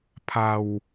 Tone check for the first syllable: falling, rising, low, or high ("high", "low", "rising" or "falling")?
low